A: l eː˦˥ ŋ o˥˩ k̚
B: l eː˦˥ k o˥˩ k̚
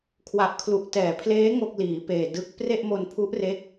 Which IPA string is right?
A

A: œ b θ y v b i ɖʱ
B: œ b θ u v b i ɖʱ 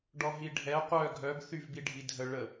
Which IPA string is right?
A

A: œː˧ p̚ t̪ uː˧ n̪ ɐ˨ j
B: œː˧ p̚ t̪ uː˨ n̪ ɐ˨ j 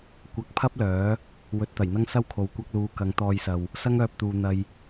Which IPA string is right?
B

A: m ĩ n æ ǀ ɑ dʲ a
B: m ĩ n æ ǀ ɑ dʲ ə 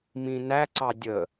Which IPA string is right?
B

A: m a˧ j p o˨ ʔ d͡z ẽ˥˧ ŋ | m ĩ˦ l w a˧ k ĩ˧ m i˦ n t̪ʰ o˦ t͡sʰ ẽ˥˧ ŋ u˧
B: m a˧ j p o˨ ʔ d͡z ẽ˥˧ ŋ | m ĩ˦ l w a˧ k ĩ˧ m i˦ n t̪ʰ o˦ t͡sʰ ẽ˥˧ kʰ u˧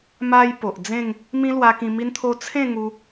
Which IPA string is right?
A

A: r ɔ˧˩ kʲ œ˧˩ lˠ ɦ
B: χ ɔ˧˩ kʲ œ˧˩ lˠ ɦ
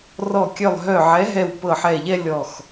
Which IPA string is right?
A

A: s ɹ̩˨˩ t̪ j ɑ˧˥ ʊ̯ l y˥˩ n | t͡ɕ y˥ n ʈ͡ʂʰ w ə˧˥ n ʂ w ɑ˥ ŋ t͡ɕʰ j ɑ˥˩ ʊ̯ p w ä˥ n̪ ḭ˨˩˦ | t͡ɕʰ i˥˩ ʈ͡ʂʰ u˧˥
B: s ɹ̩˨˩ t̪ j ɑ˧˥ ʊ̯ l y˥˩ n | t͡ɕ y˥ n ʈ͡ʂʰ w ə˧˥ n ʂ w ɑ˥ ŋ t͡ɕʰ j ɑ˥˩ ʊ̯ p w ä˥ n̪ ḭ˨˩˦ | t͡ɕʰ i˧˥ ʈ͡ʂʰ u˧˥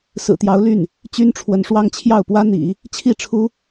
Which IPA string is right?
A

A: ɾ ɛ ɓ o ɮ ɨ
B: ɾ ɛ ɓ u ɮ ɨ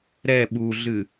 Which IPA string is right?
B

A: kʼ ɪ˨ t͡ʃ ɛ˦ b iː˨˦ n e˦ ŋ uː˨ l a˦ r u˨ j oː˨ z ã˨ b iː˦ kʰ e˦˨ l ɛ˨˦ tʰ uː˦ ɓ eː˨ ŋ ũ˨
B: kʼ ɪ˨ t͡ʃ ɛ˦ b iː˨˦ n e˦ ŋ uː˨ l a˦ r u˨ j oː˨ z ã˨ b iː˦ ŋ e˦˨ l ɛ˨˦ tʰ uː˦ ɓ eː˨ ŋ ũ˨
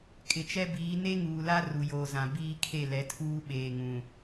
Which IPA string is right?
A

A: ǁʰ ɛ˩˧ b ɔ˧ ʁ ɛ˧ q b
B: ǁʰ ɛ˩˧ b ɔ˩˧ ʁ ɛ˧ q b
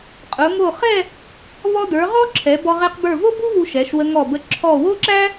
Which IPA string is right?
A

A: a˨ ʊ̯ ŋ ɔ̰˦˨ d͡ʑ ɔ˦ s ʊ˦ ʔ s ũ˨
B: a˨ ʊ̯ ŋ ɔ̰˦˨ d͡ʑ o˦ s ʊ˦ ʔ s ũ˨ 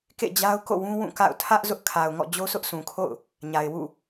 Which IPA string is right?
B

